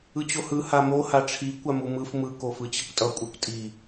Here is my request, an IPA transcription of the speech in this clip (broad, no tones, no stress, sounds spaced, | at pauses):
ɯ t͡ɕ o h ɯ h a m o h a ʈ͡ʂʰ i kʷ a m u m ɯ f m ɯ k o f ɯ t͡ɕ i kʷ tʼ ʌ kʷʼ e kʷ tʼ i